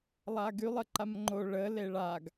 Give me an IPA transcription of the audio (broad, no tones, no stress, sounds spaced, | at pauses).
lˠ a ɡ y lˠ ə ǃ a m ŋ͡ǃ o ɭ ə l e ɭ a ɡ